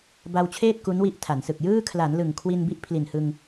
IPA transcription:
b a˧ w t͡ɕʰ eː˥˩ t̚ k u˦˥ n w i˦˥ ʔ tʰ a˩˦ n s ɯ˨˩ k̚ j ɯː˥˩ kʰ l a˩˦ n l ɯ˨˩ ŋ kʰ w i˧ n b i˦˥ ʔ pʰ l i˨˩ n h ɯ˧ ŋ

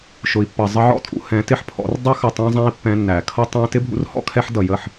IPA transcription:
ʃ ʊ˨ i̯ pː ʌ˨ zˤ ə˧ ʕ ɔ̰˦ tʼ ṵ˧ h ɛ̃˨˦ t ɪ˦ ħ pʰ ɔ̰˨˦ r dˤ ɛ˦ x ʌ˨ tˤ æ̃˧ zˤ æ̃˧ i̯ pː ɛ̃˧ nː æ˨ kʰ ʌ˦ tˤ æ̃˦ t ɪ˦ bʱ ṵ˧ r h ɔ̰˦ kʰ ɛ˧ ħ d ʌ˨ j ə˦˨ ħ

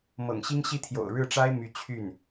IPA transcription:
m ɤ̰˨˩ ŋ ɕ i˥ ŋ ɕ i˥ t̪ʰ j o̰˨˩ ʊ̯ ɻ ɻ̩˥˩ ʈ͡ʂ a˥ ɪ̯ m y˧˥ t͡ɕʰ y˥˩ n

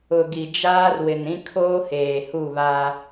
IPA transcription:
ʊ˨ ɡ i˨ d͡ʒ aː˦ r w ɪ˨ n ĩ˦ kʰ oː˦ h eː˨ h u˦˨ β a˦

